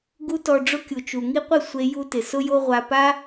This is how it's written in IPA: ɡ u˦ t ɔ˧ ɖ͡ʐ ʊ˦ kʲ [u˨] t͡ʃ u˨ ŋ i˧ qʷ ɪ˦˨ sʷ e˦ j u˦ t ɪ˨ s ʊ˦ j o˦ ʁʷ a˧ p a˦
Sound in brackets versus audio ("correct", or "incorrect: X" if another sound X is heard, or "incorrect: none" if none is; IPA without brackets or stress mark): correct